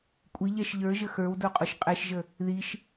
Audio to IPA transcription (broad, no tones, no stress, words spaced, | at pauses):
kʷʼiʎɛʃ ʎə˞ʒə xə˞wdoqʼoʃ qʼɛʃʒə | ðiʃ